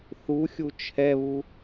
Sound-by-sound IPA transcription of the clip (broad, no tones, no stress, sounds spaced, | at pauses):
θ u xʲ u t͡ʃʰ ɛ β u